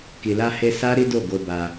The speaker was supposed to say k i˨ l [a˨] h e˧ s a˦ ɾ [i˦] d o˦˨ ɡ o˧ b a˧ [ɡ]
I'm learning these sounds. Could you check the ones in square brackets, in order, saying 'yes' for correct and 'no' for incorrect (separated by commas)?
no, yes, no